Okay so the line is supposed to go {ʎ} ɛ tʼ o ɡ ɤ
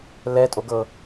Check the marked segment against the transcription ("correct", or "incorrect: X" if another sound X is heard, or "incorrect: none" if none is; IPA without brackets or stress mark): incorrect: l